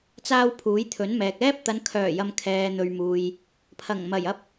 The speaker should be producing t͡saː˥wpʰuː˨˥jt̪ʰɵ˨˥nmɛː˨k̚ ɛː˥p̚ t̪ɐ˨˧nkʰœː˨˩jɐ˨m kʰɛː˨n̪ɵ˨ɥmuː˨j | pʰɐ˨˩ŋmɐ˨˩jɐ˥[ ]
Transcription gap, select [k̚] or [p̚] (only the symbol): p̚